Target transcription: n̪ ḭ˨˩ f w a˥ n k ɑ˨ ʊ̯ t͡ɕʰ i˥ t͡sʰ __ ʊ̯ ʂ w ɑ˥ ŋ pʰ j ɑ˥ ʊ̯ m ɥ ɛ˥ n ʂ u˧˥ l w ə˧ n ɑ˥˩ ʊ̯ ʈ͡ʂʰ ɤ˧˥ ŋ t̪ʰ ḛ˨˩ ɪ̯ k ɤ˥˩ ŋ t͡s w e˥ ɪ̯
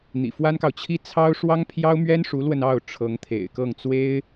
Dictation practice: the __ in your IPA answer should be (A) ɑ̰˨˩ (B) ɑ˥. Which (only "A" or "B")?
B